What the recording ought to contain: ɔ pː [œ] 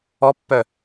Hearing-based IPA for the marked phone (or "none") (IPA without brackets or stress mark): œ